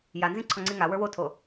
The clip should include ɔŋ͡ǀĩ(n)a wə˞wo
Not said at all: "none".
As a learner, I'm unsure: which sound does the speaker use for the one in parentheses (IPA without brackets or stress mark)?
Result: ŋ